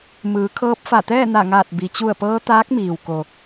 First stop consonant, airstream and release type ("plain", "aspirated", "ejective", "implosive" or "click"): aspirated